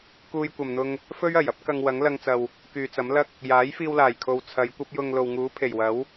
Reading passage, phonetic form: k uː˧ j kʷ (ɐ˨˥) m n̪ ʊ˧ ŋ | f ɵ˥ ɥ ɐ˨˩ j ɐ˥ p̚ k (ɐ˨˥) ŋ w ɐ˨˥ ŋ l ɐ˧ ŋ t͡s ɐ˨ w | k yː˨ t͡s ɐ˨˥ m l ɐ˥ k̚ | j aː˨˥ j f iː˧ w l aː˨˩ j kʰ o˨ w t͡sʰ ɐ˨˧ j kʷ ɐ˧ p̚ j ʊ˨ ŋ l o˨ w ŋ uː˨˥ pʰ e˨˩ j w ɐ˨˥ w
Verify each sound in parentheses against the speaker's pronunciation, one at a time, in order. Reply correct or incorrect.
incorrect: ɐ˨, incorrect: ɐ˧

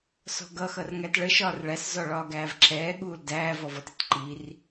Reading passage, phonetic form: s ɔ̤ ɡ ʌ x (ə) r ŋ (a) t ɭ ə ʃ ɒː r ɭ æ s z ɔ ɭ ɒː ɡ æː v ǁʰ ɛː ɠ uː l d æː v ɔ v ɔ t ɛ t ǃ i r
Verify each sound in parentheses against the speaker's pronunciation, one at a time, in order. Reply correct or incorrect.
incorrect: ʌ, incorrect: æ

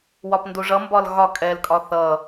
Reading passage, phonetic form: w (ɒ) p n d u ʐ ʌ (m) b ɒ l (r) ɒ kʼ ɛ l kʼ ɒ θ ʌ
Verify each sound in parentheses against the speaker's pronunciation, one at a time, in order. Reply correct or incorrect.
correct, correct, incorrect: ɣ

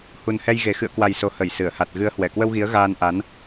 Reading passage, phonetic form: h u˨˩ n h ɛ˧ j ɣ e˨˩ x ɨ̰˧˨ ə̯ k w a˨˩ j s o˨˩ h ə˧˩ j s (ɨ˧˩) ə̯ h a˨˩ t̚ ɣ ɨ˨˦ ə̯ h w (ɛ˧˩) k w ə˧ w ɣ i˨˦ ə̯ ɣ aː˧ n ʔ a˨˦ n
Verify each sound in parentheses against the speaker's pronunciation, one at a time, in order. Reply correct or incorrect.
correct, correct

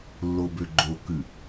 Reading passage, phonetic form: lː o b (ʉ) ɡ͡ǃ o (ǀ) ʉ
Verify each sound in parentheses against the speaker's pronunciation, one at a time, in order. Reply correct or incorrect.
incorrect: ø, incorrect: k

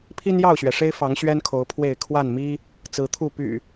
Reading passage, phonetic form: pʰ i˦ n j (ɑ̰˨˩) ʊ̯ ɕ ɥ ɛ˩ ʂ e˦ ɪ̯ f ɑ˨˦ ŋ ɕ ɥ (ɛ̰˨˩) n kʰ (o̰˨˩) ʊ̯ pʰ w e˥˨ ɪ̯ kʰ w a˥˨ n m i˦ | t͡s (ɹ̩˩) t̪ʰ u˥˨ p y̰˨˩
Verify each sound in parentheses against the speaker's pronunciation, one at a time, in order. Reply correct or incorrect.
incorrect: ɑ˥˨, incorrect: ɛ˦, incorrect: o˨˦, incorrect: ɹ̩˨˦

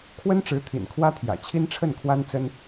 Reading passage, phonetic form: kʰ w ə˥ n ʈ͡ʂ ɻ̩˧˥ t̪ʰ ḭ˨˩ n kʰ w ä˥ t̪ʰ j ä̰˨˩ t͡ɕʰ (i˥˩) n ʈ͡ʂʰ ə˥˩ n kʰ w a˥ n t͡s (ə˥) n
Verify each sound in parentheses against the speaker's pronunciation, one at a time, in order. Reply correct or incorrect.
incorrect: i˥, correct

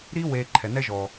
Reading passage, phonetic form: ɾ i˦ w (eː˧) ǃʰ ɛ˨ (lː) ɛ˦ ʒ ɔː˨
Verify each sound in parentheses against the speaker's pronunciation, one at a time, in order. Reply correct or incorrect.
correct, incorrect: n

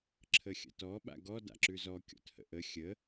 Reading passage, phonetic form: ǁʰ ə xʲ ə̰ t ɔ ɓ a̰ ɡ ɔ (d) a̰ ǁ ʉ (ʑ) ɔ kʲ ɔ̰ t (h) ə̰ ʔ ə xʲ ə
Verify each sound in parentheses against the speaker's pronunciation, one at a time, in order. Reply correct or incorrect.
correct, incorrect: z, correct

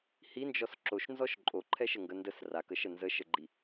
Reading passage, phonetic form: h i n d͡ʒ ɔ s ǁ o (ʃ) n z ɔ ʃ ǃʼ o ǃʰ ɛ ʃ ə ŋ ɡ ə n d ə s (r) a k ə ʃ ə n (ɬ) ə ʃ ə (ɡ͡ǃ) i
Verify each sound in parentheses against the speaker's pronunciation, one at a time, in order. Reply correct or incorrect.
correct, correct, incorrect: z, correct

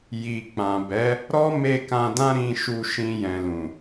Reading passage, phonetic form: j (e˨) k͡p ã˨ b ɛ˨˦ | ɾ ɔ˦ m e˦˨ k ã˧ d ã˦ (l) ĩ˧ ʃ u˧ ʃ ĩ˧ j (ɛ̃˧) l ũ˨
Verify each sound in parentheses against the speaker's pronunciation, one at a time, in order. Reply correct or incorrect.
incorrect: i˨, incorrect: ɾ, incorrect: ɛ̃˨

